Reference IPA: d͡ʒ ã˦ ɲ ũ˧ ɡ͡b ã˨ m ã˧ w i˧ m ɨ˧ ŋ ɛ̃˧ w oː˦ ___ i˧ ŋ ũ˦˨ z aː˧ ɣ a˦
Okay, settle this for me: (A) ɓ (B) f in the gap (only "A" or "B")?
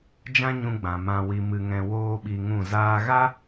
A